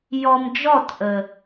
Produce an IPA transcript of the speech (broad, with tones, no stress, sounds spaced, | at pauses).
j ɔ˧ m d͡ʒ ɔ˦˨ t ʔ ə˨